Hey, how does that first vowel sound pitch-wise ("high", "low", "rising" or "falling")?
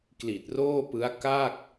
low